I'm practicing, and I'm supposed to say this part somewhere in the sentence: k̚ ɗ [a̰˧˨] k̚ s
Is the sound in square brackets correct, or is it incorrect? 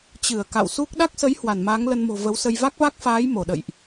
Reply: incorrect